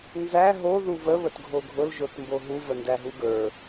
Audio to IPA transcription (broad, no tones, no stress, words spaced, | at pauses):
nzæ ɦo ðuvə βətɡʱoɡʱʊl ʒotmboɦu vəndæɦuɡə˞